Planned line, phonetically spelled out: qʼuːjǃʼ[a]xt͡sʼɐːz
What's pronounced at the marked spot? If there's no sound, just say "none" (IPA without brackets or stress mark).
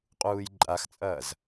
a